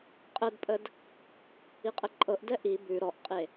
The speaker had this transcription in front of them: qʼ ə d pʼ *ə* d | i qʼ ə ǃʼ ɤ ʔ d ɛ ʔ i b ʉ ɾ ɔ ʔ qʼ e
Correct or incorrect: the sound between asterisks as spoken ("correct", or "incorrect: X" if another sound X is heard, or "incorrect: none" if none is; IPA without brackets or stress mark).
correct